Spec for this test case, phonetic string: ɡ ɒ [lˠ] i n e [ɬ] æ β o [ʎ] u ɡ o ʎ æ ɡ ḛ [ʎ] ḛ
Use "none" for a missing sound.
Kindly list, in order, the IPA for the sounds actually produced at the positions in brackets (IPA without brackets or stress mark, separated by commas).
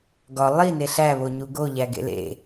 lˠ, ɬ, ɲ, l